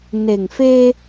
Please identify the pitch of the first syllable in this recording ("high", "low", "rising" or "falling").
low